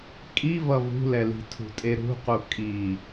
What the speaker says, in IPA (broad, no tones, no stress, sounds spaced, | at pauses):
kʼ i v ʌ v ṳ l ɛ l i̤ tʰ ṳ tʼ e ɾ ṳ q u kʼ i